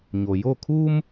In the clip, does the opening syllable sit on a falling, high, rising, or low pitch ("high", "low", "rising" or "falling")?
low